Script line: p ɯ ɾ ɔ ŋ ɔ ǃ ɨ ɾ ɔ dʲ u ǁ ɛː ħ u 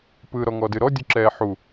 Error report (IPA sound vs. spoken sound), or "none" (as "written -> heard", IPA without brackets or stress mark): ǃ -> d